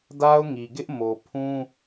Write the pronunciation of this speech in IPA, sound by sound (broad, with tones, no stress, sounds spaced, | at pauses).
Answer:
d a˦ ʊ̯ ŋ i˨ ɡ ɪ˦ ʔ m o˨ pʰ ũ˦